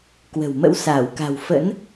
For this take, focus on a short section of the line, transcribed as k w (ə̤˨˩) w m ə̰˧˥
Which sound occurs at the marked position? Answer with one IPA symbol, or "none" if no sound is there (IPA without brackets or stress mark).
ə̤˨˩